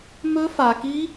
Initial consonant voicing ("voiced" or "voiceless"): voiced